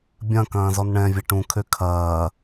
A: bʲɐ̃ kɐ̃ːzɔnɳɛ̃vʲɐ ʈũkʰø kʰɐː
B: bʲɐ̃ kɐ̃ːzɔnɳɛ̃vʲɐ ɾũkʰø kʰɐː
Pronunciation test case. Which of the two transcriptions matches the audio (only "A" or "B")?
A